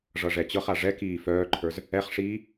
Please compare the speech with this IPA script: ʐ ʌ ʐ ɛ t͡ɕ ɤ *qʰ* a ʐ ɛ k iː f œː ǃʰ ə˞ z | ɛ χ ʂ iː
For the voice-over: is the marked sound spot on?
no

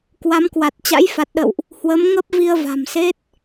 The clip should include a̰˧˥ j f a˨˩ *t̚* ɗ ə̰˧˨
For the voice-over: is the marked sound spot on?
yes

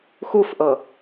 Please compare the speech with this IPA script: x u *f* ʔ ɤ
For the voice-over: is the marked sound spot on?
yes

